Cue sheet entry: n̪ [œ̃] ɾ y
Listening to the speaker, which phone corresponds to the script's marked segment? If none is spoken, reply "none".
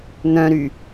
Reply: œ̃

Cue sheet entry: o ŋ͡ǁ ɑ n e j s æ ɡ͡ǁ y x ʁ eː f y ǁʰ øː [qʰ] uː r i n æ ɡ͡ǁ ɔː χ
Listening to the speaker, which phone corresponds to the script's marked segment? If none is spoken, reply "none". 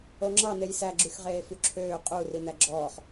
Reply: qʼ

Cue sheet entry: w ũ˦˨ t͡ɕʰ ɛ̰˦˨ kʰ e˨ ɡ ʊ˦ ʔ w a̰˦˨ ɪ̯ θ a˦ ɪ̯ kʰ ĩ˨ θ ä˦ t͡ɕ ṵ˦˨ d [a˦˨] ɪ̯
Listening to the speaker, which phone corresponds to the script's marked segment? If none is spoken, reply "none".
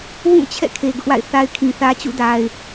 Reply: a˨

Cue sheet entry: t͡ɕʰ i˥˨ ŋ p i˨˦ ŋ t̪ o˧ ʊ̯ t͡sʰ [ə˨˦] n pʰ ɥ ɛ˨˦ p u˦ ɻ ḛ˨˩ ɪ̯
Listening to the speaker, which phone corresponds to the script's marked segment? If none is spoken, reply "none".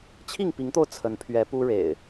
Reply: ə˨˦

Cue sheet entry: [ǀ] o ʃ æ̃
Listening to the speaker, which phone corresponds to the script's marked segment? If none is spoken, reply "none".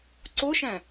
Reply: ǀ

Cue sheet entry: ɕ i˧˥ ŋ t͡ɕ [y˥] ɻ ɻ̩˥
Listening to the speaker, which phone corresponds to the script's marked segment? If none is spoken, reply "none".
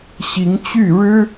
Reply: y˥˩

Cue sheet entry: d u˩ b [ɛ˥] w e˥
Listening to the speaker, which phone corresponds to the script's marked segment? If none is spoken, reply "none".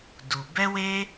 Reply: ɛ˥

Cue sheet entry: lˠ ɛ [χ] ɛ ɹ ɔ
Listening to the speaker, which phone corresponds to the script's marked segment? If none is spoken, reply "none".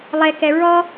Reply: k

